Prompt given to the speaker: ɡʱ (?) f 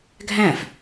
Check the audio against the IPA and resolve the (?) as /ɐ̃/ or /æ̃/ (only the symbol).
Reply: æ̃